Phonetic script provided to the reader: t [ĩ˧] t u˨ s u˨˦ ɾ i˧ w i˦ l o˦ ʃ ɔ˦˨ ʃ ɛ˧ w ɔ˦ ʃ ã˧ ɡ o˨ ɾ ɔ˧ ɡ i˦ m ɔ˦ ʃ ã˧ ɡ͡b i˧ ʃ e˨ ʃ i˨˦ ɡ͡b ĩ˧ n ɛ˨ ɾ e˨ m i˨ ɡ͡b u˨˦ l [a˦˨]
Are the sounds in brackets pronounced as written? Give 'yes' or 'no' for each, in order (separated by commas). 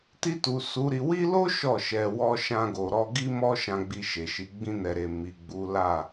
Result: no, yes